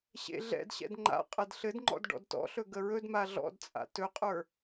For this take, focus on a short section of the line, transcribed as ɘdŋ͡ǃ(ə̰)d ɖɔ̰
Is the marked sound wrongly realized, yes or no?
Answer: yes